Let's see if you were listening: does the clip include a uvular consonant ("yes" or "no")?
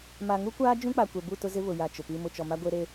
no